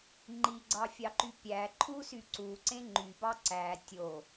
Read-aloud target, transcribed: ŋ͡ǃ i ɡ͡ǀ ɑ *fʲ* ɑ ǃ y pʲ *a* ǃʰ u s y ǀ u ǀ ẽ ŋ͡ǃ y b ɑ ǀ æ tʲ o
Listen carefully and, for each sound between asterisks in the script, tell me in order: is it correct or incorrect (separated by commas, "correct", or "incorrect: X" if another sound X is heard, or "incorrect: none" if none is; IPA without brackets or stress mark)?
correct, incorrect: æ